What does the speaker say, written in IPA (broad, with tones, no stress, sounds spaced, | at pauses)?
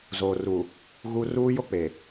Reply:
z oː˨ r u˨ | ɣ u˦ r uː˦ j o˦ k͡p e˨